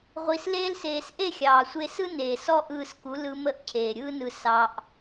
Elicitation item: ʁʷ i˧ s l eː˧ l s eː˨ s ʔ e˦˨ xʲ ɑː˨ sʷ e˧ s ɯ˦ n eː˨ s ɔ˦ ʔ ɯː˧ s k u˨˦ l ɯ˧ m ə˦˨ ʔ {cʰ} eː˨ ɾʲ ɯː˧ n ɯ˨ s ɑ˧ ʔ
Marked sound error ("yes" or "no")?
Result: no